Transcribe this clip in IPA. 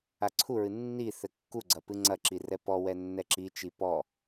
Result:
a ǀʰ u ɹ ɨ nː i θ ɘ kː u ɡ͡ǀ ɐ p ɨ ŋ͡ǀ ɐ ǁ i r ɛ p ɔ w ɛ nː ɛ ǁ i t͡ʃ i p ɔ

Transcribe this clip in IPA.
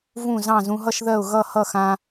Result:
v ũ˥˩ z ɑ̃˥˩ z ũ˧ ɦ ʌ˥˧ ʃ ð ɜ˥˩ ʊ̯ ɣ ʌ˥˩ h ʌ˥˩ x ã˧

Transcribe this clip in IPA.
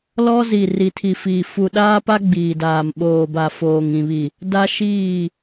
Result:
l ɔ˦ z i˨ r i˨ tʰ i˨ f iː˨ f u˨ ɗ aː˦ p a˦ ɡ͡b iː˨ d aː˨ m ɓ oː˨ b a˨ f oː˨ ŋ ĩ˨ β i˨ | d a˦ ʃ iː˦˨

